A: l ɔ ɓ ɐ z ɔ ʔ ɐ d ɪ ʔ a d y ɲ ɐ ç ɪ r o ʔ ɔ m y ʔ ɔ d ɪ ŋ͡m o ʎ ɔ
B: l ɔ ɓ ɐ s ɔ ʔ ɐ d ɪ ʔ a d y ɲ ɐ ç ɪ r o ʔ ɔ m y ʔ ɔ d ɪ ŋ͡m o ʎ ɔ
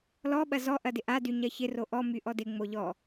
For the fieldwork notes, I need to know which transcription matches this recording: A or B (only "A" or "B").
A